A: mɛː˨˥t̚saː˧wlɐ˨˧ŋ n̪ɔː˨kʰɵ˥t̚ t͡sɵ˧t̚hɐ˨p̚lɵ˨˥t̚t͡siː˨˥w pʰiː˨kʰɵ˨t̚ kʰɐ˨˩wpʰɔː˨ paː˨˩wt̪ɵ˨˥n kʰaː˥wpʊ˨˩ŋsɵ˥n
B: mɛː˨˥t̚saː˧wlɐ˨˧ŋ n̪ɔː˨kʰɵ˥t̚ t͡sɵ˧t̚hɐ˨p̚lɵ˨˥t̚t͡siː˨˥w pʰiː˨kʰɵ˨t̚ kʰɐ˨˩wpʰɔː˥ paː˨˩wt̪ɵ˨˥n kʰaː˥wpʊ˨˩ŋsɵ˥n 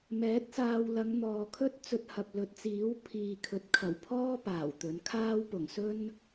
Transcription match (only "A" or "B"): B